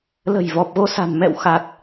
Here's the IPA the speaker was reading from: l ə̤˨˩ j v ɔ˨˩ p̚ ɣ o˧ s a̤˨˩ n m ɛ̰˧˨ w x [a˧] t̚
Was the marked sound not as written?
yes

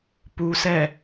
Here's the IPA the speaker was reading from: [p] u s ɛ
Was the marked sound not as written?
no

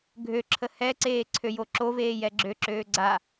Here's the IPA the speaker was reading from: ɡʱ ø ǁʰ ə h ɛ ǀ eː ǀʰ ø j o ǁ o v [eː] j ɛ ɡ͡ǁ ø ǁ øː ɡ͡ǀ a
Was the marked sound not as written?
no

